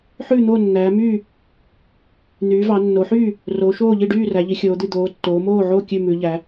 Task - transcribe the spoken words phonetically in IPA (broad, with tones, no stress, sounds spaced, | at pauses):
ħ ʉ˥˩ n̪ o˥˩ nː æː˩˧ m y˥˩ | n̪ yː˩˧ v ɑ˩˧ nː o˩˧ ħ yː˥˩ | r o˩˧ ʃ oː˥˩ ʎ i˥˩ ɖ yː˥˩ r æ˩˧ ʎ i˩˧ xʲ oː˩˧ d̪ y˥˩ d̪ oː˩˧ tː oː˩˧ m oː˥˩ ʕ o˥˩ kʲ ʉ˥˩ m ʉ˩˧ ʎ æ˩˧